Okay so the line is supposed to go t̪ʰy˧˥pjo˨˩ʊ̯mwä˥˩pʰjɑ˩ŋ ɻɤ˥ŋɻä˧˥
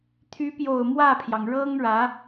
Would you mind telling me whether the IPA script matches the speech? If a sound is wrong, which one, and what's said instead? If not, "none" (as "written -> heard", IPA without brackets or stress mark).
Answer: none